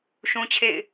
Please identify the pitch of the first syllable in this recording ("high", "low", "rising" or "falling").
high